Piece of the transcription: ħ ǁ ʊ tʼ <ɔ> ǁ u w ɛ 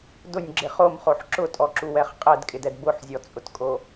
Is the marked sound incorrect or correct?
correct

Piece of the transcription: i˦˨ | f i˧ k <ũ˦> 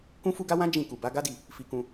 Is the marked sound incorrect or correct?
incorrect: ũ˧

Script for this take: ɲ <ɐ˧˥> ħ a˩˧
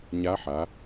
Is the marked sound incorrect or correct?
incorrect: a˧˥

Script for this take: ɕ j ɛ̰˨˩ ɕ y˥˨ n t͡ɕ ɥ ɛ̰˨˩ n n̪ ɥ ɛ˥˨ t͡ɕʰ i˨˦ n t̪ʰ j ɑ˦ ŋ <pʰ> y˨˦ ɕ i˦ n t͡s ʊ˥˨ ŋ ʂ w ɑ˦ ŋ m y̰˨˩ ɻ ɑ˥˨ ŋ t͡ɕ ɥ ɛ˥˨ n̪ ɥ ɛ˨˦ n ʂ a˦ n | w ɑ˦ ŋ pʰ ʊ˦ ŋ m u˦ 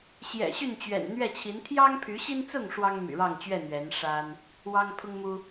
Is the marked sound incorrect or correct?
correct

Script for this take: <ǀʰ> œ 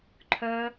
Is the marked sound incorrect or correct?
incorrect: ǃʰ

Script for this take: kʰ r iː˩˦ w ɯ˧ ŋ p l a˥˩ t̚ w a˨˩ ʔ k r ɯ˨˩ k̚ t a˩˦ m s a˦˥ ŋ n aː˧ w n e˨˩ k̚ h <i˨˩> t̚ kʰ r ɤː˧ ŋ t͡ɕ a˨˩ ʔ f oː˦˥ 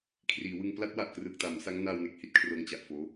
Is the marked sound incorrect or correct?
incorrect: i˥˩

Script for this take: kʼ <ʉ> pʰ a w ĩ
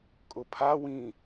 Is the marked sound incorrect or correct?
incorrect: ʊ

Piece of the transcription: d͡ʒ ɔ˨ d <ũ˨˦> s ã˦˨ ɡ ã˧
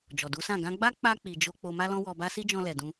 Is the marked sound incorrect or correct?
incorrect: u˨˦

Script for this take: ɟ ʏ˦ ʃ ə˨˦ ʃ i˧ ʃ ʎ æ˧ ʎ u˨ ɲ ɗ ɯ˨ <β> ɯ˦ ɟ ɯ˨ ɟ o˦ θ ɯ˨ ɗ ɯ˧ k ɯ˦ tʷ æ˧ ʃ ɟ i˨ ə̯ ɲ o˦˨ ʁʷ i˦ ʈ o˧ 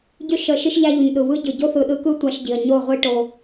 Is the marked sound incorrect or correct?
correct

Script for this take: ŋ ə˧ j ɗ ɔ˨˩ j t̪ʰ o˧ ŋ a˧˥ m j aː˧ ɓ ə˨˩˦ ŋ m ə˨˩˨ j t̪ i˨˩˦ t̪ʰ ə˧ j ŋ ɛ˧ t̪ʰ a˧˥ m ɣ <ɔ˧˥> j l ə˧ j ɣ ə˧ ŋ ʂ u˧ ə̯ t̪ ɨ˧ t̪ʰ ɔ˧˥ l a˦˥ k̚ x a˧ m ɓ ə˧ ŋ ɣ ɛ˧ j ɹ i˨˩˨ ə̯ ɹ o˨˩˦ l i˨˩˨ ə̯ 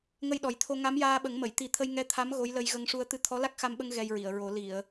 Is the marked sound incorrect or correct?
incorrect: o˧˥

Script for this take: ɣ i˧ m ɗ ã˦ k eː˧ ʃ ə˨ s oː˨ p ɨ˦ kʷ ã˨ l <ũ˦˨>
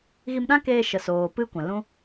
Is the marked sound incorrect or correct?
incorrect: ũ˦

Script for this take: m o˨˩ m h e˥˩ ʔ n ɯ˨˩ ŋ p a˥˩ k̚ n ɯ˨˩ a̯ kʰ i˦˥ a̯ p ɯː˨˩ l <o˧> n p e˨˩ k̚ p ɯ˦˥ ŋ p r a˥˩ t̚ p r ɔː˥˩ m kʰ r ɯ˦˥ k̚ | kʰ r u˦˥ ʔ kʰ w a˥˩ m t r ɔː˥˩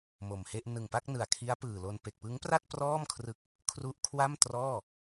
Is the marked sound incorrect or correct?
correct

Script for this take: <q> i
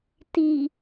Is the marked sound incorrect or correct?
incorrect: t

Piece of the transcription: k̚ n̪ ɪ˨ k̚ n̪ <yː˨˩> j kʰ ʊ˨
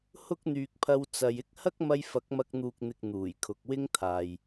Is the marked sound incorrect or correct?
incorrect: uː˨˩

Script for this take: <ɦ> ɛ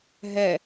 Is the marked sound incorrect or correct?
correct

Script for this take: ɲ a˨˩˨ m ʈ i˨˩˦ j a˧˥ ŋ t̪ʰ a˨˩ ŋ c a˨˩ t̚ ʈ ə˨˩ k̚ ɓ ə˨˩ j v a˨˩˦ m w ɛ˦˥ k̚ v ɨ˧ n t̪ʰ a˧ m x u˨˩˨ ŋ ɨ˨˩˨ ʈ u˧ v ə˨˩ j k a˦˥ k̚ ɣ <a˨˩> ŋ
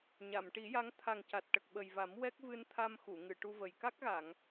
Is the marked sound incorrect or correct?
incorrect: a˨˩˨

